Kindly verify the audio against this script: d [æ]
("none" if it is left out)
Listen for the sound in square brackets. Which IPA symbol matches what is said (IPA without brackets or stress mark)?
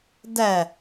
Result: æ